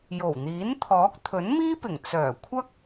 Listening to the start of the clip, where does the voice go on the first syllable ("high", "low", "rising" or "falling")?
low